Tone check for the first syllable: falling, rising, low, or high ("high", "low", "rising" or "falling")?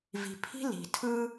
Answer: low